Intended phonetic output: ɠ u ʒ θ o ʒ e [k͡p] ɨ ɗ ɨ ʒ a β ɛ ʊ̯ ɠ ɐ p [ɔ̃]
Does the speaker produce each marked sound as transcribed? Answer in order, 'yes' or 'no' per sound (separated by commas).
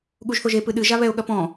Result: no, yes